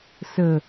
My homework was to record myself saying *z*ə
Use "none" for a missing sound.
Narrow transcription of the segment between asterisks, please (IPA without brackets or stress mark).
s